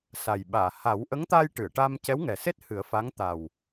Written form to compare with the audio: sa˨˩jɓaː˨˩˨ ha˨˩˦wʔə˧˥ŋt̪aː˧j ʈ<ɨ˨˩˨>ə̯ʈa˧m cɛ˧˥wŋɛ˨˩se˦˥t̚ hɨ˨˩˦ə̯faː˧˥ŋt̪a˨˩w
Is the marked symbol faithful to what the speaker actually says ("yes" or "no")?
yes